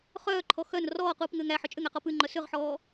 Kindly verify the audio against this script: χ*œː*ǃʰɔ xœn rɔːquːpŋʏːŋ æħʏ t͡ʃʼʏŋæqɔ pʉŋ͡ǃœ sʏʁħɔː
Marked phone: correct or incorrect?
correct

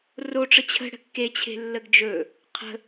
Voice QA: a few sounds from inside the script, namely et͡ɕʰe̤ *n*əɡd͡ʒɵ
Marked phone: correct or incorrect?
incorrect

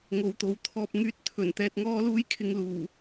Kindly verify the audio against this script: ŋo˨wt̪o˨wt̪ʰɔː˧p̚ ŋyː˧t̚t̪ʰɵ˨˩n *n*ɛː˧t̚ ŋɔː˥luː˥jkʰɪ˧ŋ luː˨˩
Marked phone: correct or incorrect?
incorrect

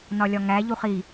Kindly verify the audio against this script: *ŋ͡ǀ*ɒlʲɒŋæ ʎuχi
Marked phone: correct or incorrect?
incorrect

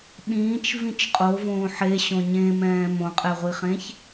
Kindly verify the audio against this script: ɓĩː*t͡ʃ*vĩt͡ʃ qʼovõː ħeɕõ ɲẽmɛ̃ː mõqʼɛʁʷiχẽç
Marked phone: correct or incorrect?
correct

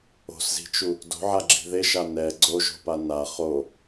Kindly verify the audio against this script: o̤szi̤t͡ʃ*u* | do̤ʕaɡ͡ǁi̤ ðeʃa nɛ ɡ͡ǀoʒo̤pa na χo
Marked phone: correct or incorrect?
correct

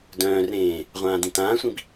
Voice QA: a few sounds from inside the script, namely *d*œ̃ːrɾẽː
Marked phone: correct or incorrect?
correct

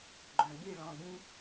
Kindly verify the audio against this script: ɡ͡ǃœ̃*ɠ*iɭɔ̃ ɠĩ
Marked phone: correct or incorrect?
correct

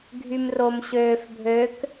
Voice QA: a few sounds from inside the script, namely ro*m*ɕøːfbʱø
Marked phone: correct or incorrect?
correct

